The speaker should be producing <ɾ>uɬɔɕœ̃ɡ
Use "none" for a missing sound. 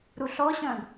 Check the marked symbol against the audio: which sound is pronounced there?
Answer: ɾ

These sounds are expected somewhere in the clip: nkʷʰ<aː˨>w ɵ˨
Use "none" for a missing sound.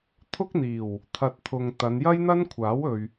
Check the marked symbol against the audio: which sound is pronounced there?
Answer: aː˨˥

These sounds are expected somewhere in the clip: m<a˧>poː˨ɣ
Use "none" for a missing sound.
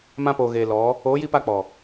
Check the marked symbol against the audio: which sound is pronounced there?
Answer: ã˧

